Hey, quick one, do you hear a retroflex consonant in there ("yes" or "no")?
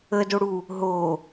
yes